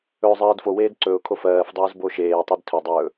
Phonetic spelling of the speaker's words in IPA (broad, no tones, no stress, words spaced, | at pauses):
ɵːzˤɜːdfoweːd ǀɵʊ̯kʰo fɜːfdˤɵːz boʃeːtˤid tʰɵdˤɵː